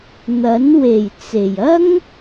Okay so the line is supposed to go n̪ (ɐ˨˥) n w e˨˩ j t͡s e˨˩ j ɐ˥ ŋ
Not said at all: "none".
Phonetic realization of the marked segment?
ɐ˨˥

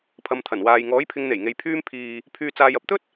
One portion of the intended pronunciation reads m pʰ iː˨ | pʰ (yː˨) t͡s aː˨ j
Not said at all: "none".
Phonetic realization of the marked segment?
yː˨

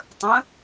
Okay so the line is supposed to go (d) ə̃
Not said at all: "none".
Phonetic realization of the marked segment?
tˤ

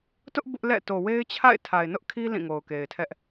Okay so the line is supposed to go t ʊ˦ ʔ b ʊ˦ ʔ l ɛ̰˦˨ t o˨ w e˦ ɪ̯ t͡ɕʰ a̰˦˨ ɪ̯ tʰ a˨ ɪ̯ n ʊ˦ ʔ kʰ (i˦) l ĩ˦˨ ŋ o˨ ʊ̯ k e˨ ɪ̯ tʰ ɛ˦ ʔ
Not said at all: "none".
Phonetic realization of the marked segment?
i˦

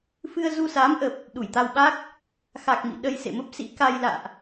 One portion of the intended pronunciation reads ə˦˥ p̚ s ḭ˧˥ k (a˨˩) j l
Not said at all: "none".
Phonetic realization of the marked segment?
a˧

